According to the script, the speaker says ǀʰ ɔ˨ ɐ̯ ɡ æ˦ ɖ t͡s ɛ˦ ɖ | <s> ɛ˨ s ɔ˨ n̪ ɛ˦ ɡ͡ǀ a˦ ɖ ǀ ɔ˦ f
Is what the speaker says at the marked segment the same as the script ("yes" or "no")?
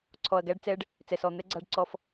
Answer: no